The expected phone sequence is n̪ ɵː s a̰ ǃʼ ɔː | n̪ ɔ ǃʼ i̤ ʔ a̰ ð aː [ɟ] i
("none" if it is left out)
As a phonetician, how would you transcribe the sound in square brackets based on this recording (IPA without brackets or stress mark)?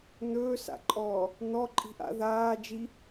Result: d͡ʒ